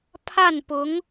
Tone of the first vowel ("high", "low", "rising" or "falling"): falling